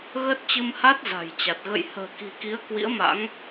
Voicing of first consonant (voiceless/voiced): voiced